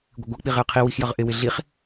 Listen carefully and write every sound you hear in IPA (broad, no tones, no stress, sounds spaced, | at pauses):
ɡʷ ɪ ɡʷ ʌ k͡p i ʁ ɪ ə̯ qʰ i w i x j ʌ ʁ ʔ ɪ w ɪ ɮ i χ